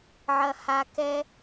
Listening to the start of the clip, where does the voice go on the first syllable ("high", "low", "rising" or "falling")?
low